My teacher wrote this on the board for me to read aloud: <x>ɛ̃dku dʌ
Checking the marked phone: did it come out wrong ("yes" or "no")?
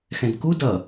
no